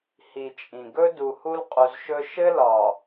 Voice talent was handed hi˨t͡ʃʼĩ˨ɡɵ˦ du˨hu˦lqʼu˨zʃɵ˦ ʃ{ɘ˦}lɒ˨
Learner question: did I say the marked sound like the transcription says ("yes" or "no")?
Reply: yes